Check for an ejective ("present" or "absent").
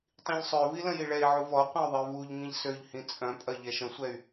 present